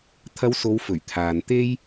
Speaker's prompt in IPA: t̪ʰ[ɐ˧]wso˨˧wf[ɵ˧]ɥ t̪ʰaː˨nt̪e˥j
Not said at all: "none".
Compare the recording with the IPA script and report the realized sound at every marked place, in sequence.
ɐ˧, ɵ˨˩

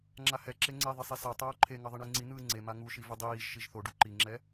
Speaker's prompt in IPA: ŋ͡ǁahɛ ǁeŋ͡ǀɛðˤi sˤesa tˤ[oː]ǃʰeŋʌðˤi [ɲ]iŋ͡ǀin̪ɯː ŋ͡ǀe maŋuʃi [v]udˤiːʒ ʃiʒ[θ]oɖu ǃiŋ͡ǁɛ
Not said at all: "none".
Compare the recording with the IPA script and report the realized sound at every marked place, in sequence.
oː, ɳ, v, θ

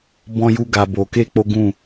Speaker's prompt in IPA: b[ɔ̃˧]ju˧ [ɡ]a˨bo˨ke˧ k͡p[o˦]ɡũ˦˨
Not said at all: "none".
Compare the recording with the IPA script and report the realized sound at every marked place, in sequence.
ɔ̃˧, ɡ, o˦

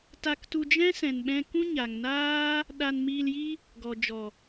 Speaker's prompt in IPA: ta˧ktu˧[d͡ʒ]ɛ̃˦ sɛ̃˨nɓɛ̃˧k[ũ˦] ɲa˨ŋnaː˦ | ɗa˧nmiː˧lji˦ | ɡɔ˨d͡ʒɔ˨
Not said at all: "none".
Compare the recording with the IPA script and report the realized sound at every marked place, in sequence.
d͡ʒ, ũ˦

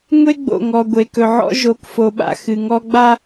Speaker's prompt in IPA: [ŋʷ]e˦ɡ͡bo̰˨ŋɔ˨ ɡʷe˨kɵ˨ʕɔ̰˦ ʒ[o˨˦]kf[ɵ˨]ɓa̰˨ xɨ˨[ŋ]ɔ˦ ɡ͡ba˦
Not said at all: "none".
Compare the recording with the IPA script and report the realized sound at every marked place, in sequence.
ŋʷ, o˨˦, o˨, ŋ

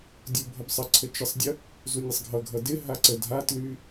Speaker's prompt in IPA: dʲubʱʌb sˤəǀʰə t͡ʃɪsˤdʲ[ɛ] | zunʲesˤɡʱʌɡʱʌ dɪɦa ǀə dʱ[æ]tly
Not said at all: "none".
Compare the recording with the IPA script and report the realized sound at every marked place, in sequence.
ə, a

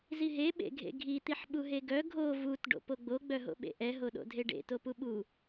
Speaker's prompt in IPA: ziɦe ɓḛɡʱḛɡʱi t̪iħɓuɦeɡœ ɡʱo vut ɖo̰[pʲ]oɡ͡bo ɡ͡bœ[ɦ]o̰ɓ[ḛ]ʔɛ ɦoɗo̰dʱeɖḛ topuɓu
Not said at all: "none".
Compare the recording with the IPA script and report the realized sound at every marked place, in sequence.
p, ɦ, ḛ

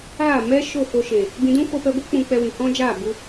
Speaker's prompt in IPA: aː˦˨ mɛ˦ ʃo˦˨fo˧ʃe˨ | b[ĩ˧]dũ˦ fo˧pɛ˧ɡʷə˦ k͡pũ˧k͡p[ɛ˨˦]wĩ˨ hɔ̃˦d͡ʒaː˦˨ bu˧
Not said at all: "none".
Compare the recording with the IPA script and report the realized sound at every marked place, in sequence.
ĩ˧, ɛ˧

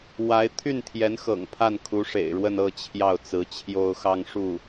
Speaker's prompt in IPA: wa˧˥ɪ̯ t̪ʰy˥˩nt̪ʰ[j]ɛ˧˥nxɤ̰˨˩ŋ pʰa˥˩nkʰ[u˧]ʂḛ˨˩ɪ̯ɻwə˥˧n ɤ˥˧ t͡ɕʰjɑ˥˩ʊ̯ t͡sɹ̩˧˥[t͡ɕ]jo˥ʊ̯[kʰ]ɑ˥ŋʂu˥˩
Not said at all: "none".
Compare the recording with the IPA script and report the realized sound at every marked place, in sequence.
j, u˧˥, t͡ɕʰ, x

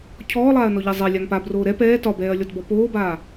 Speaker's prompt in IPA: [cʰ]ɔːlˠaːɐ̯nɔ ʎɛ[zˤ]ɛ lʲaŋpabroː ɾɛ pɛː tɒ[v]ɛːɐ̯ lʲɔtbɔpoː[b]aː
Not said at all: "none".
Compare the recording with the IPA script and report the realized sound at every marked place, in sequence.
cʰ, zˤ, b, b

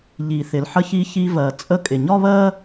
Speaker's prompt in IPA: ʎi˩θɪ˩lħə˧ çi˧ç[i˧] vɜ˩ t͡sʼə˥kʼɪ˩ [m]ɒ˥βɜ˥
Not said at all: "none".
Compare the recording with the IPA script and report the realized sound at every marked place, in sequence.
i˧, ɲ

